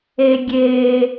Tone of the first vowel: high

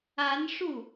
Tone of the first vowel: rising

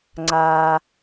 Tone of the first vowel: low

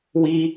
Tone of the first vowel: high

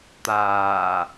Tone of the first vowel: low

